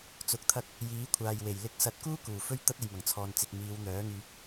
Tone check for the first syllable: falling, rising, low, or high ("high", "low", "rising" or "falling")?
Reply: low